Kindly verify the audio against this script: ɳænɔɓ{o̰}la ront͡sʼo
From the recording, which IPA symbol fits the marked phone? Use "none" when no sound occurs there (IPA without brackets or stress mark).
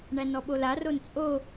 o